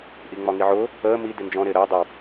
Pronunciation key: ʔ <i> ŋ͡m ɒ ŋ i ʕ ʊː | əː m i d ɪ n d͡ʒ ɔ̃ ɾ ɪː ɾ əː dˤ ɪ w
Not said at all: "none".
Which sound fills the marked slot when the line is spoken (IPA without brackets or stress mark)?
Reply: i